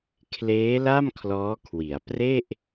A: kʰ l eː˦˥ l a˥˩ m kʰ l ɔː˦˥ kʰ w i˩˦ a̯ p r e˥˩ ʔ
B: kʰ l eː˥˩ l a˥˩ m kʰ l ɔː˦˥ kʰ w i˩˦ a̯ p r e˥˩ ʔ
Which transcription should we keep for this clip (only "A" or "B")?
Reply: A